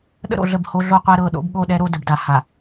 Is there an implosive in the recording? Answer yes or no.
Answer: yes